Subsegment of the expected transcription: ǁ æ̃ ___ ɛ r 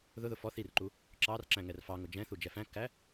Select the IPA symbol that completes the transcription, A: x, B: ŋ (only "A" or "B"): B